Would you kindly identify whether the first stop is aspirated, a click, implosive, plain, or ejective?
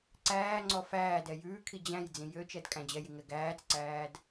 click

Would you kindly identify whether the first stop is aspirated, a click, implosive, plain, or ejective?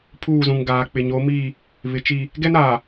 aspirated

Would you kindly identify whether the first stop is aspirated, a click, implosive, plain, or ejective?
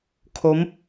aspirated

